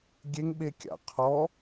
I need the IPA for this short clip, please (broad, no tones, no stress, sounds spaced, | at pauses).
ɡʲ e ŋ ɓ e kʲ a̰ qʰ ɔ